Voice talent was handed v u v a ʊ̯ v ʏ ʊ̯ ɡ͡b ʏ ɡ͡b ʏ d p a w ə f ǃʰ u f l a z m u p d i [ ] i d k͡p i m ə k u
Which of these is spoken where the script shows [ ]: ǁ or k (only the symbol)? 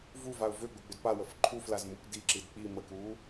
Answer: ǁ